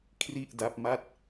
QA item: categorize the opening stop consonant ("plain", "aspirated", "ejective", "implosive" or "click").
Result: aspirated